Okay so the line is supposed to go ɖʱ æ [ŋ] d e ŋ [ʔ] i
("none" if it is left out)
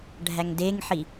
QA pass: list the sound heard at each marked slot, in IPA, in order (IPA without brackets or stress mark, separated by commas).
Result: ŋ, ħ